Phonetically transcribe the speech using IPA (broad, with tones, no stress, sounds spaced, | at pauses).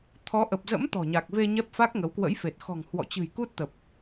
t̪ʰ ɔ˨˦ ʔ ə˨˩ p̚ z ə̰˧˥ m t̪ ɔ̤˨˩ ɲ a˨˩ k̚ v e˧ ɲ ɛ˦˥ p̚ f a˦˥ k̚ ŋ ə˨˦ w k w ə̰˧˥ j f e˨˩ t̚ x ɔ̤˨˩ ŋ h w ɔ̰˧˨ t͡ɕ ɨ̤˨˩ j k u˦˥ t̚ t̪ ə˨˩ p̚